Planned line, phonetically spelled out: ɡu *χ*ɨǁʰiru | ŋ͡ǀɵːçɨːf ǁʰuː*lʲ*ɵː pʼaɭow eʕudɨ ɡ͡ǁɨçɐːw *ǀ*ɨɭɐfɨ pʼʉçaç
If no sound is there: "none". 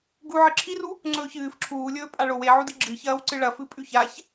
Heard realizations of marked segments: ʕ, lʲ, ǀ

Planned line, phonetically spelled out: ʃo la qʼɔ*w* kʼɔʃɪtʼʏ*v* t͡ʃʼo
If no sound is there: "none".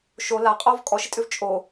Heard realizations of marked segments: v, v

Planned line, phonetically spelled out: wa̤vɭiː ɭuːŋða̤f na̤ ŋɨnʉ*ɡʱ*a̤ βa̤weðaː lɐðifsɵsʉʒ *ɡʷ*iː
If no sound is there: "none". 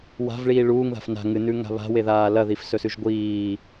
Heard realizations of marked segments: ŋ, ɡʷ

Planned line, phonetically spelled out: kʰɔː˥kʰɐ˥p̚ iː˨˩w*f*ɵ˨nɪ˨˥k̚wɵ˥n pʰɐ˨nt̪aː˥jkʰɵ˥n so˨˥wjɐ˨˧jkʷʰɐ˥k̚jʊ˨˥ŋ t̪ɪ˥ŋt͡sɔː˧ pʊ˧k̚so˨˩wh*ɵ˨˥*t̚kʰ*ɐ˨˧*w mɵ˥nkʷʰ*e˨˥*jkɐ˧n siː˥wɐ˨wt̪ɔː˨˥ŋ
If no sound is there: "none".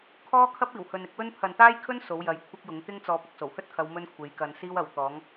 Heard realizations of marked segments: h, ɵ˥, ɐ˨˧, e˨˧

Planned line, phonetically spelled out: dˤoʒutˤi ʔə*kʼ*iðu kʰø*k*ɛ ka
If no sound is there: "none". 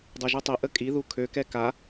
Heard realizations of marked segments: kʼ, k

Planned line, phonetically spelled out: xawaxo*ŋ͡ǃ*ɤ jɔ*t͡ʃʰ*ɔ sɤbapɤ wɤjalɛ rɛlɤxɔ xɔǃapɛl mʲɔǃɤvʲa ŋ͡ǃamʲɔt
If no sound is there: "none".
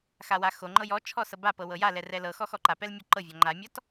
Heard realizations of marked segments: ŋ͡ǃ, t͡ʃʰ

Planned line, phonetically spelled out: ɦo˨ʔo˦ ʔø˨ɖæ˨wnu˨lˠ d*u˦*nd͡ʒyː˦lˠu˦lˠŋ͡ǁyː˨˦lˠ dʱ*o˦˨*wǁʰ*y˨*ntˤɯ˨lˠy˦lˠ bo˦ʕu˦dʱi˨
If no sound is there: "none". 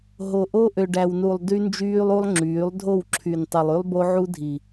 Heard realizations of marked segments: y˦, o˦˨, y˨

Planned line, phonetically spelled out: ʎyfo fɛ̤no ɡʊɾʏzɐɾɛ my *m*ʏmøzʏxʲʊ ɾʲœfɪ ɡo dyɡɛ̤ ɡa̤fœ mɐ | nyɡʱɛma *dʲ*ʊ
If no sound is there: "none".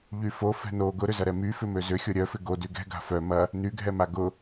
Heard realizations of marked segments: f, ɡ

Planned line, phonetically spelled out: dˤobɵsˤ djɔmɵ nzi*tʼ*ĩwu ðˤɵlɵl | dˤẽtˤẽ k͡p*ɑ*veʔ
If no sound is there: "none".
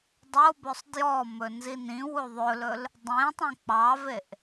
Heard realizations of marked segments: n, ɑ

